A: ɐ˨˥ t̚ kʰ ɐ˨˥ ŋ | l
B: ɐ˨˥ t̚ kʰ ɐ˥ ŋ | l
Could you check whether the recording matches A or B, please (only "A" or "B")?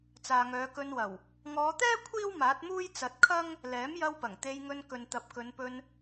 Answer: B